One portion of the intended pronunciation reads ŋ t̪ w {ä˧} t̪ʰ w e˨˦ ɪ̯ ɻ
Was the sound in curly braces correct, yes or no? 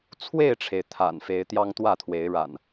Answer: no